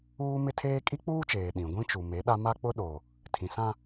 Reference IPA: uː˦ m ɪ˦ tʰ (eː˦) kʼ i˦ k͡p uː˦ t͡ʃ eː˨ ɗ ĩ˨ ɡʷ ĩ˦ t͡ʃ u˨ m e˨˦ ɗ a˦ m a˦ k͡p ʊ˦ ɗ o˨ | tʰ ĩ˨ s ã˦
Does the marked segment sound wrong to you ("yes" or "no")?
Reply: no